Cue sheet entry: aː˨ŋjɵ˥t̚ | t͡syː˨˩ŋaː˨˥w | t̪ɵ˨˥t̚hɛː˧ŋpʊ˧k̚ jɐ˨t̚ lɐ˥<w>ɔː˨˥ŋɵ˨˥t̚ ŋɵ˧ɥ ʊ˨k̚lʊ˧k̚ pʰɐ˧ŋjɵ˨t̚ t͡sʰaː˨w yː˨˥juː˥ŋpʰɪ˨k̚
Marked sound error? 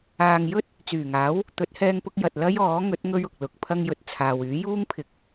yes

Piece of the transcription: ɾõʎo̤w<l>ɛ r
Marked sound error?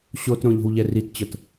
yes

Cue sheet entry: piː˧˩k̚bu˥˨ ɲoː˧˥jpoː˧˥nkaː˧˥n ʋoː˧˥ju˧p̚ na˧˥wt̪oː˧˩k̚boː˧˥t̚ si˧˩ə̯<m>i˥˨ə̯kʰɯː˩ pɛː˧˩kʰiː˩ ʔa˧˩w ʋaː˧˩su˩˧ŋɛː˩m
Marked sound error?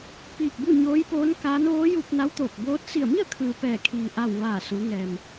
no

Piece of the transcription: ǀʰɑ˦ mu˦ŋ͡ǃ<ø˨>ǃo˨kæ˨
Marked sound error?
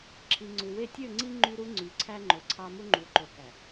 yes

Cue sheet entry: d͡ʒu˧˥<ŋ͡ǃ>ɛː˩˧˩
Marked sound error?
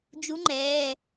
no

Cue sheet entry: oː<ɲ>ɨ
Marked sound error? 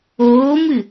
yes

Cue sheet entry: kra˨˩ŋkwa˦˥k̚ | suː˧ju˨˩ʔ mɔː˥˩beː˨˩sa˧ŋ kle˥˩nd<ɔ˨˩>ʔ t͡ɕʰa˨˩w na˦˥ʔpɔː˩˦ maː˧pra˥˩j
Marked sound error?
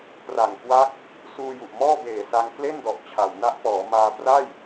no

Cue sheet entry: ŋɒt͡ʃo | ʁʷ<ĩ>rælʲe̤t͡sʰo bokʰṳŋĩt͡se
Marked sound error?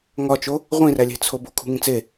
no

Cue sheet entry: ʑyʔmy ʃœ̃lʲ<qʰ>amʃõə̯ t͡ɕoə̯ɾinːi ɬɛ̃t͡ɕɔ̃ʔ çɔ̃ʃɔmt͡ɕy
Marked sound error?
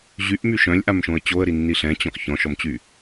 yes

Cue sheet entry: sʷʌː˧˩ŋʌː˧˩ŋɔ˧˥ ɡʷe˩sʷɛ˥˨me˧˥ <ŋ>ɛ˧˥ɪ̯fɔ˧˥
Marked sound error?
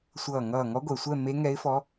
no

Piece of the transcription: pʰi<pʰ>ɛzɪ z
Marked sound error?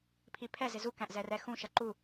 no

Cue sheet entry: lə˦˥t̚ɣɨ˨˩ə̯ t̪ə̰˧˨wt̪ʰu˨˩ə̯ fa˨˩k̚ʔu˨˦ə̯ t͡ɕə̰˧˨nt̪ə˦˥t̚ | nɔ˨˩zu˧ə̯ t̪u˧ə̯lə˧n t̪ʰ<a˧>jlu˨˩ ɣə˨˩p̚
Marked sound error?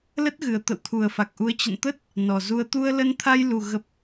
no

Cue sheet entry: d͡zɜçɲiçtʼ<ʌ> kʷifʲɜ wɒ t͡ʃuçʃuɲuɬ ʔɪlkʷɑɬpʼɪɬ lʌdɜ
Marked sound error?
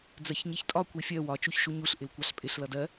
yes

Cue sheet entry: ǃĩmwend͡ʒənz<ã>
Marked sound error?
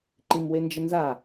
yes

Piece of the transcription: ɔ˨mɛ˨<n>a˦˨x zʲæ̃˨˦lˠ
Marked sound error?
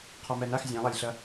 no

